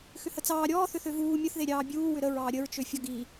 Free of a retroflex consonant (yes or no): yes